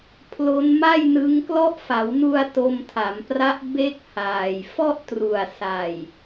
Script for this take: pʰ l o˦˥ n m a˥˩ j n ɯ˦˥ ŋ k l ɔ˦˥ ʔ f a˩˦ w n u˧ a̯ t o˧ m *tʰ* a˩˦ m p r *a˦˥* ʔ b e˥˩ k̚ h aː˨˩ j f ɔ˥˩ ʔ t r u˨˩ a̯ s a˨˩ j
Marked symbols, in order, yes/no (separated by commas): yes, yes